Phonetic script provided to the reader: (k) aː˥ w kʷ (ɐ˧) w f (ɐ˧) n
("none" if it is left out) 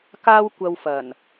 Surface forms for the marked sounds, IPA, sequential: k, ɐ˧, ɐ˨˩

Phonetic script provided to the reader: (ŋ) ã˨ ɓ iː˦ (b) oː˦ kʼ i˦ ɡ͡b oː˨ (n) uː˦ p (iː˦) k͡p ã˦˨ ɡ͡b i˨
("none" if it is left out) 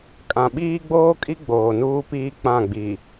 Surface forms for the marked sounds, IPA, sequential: kʼ, ɡ͡b, n, iː˦

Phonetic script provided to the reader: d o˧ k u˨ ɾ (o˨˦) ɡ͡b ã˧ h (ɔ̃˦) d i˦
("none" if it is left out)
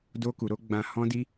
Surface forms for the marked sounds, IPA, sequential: o˨˦, ɔ̃˦

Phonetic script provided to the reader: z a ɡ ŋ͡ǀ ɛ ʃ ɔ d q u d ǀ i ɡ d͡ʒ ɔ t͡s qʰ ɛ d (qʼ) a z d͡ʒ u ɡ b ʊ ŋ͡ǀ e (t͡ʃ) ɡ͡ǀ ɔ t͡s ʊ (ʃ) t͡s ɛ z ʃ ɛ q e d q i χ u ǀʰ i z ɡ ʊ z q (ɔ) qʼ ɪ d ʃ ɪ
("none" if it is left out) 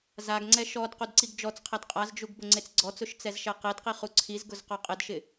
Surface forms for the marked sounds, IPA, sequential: qʼ, t͡s, ʃ, ɔ

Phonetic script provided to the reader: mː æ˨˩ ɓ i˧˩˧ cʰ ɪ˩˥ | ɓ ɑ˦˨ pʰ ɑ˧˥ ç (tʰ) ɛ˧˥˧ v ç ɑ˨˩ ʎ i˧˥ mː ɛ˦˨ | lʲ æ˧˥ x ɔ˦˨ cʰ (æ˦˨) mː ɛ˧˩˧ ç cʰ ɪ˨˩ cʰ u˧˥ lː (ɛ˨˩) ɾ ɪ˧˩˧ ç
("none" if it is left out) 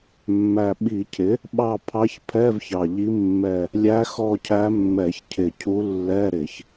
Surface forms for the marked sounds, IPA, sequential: pʰ, æ˧˥, ɛ˧˥˧

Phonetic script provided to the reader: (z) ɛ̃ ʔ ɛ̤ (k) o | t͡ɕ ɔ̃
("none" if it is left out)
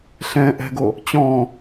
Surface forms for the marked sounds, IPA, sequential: ɬ, ɡ

